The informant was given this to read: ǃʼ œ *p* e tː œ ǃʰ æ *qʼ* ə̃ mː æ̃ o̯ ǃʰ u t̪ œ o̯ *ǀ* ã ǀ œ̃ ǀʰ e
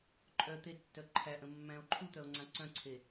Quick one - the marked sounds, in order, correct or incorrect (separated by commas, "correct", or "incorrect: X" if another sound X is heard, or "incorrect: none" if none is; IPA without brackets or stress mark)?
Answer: incorrect: t̪, incorrect: ʔ, incorrect: ŋ͡ǀ